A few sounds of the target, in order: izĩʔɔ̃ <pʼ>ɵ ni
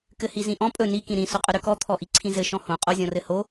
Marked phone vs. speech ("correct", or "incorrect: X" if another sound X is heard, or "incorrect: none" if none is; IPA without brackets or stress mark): correct